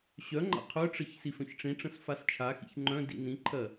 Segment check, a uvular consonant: present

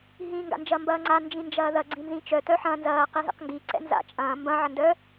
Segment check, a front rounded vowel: present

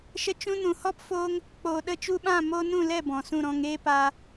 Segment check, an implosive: present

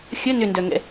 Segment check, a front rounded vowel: present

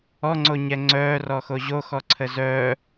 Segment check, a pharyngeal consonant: absent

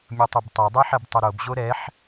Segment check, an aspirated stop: absent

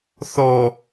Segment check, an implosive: absent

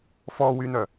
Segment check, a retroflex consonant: absent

